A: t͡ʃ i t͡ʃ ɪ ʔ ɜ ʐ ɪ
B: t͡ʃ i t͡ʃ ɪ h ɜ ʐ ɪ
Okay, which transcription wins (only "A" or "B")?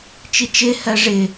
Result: B